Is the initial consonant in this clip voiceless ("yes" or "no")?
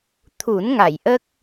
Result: yes